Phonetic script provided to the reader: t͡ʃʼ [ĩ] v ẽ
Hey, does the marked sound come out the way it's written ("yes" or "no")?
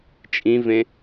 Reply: yes